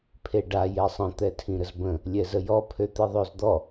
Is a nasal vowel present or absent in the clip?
present